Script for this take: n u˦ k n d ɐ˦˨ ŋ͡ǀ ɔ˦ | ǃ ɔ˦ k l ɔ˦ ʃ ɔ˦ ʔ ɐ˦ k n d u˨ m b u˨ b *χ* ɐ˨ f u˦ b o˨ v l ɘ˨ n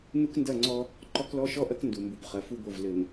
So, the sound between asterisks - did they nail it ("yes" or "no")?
yes